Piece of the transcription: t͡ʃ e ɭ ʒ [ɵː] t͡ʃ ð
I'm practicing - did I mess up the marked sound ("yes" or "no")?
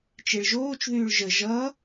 yes